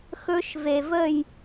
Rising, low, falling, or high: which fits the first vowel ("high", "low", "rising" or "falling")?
high